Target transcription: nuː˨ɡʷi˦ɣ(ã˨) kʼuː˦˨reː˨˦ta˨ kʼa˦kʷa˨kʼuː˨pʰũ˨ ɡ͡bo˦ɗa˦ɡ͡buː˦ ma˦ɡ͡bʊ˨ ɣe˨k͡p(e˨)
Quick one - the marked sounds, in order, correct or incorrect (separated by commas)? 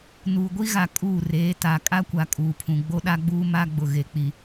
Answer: incorrect, incorrect